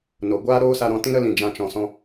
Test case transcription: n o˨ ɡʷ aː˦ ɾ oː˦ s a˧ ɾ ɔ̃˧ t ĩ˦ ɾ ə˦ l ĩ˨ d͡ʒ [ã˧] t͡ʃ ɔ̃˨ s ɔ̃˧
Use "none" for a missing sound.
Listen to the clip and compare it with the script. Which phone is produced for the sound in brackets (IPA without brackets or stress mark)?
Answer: ã˧